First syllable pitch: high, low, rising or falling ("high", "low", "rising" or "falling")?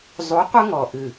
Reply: rising